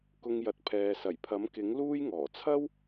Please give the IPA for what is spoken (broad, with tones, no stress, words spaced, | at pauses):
kʊ˧ŋjɐ˨t̚pʰɛː˨ sɐ˨˩jpʰɐ˨˥mkɪ˨˥ŋ luː˥jŋɔː˨˩ t͡sʰɐ˥w